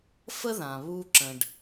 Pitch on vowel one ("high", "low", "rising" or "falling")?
high